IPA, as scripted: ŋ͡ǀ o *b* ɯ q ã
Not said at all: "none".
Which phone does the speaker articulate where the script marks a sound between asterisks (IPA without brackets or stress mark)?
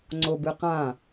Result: b